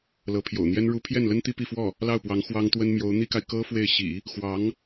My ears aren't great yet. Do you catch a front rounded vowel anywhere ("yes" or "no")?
no